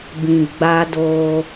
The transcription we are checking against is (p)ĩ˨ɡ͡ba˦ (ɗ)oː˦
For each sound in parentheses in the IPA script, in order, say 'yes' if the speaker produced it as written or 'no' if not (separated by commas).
no, no